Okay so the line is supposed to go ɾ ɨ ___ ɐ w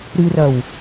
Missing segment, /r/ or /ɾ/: r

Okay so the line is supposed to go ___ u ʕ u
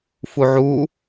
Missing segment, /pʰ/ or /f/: f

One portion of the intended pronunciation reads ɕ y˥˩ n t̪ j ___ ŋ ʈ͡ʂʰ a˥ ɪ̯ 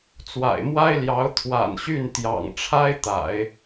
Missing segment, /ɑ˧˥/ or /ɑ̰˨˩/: ɑ̰˨˩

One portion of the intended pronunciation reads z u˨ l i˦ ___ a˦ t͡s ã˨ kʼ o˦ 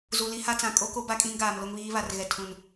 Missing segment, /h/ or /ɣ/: h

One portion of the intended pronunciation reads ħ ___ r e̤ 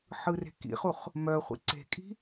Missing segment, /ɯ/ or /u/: ɯ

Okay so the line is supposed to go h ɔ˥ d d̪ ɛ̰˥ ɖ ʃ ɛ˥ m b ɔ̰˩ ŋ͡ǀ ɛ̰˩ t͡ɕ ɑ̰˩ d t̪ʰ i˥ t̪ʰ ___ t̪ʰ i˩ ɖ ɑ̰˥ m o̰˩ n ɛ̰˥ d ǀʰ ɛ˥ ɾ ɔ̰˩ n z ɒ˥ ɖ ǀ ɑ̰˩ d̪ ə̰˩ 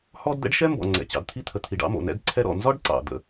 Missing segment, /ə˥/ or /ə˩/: ə˩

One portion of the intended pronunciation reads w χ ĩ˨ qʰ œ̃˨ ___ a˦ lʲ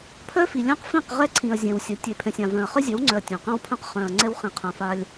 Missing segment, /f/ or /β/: f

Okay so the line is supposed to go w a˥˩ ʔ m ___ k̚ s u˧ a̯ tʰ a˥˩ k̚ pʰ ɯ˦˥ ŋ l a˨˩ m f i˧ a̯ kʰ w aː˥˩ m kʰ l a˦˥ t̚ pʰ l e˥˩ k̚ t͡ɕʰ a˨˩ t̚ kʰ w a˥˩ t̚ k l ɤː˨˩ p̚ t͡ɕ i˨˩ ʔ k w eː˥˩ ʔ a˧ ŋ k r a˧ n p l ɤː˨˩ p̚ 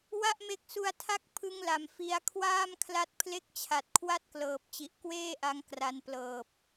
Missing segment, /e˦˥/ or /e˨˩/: e˦˥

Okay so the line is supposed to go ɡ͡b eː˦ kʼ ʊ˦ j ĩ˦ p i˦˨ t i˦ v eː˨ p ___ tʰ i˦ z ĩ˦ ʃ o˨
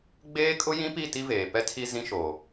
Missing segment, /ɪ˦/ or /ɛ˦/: ɛ˦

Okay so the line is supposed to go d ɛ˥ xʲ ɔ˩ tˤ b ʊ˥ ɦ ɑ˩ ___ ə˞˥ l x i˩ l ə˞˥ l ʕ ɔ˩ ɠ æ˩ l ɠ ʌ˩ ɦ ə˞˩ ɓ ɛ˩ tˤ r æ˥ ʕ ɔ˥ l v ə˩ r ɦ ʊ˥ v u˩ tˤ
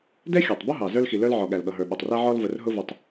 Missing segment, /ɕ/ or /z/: z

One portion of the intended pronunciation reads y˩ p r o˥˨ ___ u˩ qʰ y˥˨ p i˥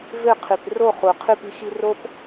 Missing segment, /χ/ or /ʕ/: χ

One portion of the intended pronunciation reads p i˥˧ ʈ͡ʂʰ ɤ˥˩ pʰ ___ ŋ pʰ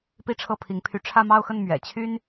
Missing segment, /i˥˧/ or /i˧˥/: i˧˥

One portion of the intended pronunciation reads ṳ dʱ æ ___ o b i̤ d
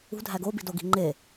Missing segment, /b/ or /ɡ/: ɡ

